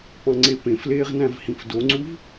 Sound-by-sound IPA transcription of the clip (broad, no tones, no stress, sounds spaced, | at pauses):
p ɑ̃ ŋ͡ǀ e p ẽ f l eː ʁ n æ̃ v h ĩ f d o ŋ͡ǀ u v